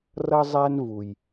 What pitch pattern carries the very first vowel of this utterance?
high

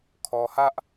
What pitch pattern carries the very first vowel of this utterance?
low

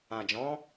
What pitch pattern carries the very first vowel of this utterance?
low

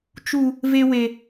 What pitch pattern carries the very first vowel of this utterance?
high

